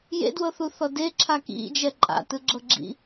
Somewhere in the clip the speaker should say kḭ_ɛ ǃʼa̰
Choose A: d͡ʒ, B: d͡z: A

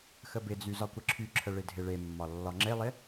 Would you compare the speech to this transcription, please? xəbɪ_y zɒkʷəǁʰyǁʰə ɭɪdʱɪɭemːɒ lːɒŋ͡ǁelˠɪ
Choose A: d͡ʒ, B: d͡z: B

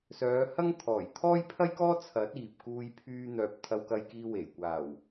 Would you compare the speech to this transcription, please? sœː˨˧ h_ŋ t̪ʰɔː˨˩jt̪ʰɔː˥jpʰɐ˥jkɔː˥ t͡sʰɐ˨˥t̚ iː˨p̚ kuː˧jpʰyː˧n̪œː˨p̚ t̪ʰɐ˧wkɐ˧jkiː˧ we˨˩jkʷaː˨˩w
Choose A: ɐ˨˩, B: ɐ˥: B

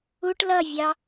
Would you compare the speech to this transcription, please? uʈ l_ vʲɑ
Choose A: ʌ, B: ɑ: A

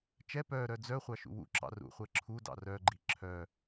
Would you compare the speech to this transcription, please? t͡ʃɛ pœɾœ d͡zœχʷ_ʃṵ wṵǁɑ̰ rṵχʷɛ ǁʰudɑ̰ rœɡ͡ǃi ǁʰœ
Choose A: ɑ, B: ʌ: A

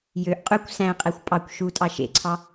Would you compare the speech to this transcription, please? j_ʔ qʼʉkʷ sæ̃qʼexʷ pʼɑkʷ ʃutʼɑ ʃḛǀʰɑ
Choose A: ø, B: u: A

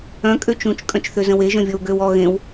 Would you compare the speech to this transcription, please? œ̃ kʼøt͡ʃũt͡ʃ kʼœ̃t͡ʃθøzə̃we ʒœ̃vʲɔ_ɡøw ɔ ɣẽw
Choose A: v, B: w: B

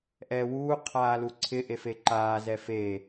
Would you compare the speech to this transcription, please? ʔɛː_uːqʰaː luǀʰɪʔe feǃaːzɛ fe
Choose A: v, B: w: B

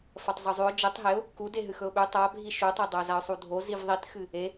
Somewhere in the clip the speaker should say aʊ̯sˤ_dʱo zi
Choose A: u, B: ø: A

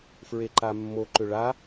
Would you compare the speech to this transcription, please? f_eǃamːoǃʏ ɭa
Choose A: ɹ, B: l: A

